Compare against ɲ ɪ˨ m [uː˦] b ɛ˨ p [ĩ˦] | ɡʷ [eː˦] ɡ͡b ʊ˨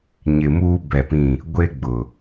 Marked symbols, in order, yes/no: yes, no, no

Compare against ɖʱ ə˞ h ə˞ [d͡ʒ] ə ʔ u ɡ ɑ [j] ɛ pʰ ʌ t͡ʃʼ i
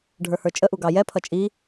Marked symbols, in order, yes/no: no, yes

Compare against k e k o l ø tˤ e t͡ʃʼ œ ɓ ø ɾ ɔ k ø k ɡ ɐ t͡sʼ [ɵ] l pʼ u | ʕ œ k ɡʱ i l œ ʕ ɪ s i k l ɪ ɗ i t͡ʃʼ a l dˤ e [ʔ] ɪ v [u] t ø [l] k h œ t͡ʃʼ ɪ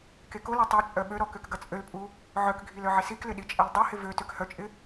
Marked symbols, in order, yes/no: no, no, no, no

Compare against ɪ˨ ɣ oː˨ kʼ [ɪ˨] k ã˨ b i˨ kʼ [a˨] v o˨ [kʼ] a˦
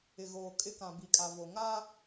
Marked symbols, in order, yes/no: no, yes, no

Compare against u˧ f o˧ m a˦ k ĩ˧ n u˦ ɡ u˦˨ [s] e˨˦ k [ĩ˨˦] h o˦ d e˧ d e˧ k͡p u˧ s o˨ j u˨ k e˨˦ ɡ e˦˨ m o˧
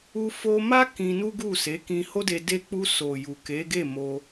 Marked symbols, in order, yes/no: yes, no

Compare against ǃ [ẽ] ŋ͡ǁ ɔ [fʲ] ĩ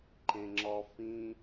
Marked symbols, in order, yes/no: yes, no

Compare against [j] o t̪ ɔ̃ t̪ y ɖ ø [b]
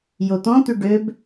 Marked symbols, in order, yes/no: yes, yes

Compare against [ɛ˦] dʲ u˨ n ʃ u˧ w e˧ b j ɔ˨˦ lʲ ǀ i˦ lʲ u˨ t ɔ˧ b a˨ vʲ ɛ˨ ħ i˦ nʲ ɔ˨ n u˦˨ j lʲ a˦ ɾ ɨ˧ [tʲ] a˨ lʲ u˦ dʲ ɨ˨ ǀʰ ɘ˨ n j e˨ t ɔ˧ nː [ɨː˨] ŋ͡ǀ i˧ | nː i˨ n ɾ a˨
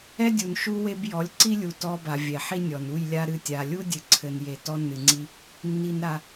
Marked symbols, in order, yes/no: yes, yes, no

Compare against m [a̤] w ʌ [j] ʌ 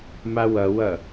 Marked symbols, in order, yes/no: no, no

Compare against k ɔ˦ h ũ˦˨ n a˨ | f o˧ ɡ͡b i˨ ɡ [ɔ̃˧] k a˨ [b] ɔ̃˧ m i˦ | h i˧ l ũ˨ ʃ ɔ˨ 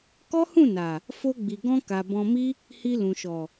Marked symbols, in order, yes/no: yes, yes

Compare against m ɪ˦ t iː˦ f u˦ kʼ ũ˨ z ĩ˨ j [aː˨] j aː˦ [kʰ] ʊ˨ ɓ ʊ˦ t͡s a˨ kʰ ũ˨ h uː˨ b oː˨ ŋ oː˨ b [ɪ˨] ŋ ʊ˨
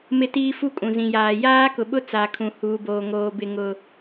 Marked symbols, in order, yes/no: yes, no, yes

